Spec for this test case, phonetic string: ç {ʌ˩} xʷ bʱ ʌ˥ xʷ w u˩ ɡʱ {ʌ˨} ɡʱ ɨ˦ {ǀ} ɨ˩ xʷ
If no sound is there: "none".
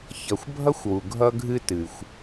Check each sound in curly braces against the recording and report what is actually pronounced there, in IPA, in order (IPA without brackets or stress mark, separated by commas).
ʌ˩, ʌ˦, t